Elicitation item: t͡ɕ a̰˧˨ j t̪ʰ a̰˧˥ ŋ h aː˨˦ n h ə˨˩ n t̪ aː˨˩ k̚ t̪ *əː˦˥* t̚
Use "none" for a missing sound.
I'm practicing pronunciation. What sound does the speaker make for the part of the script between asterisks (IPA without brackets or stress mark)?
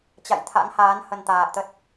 ə˦˥